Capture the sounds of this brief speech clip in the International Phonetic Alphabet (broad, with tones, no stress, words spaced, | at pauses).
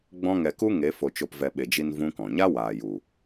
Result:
ɡ͡bɔ̃˦ŋɛ˧ ku˦ŋe˨˦ fo˧t͡ʃo˧pvɛ˧ ɓe˨d͡ʒi˧n vũ˦kɔ̃˨ ɲa˦waː˨ju˨